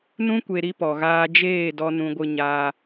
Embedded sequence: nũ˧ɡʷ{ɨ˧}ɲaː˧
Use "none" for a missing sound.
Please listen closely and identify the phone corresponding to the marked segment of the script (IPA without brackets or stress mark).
ɨ˧